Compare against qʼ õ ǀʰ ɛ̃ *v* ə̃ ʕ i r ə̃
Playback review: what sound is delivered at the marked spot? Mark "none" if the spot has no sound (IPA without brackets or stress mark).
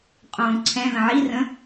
ð